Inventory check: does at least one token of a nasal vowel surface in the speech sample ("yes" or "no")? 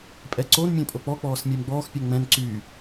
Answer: yes